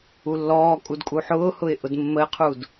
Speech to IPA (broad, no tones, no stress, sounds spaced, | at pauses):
u lː ɔː kʼ u d kʼ u ħ ʊː h ʊ ɪ̯ ʔ ʊ d mː ə ɪ̯ qʰ uː d